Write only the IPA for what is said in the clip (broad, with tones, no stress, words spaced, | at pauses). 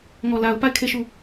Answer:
ŋɔ˨la˨ʊ̯pa˦˨ɪ̯ kʰe˦˨ʃu˦˨